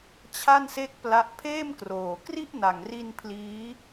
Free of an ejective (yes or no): yes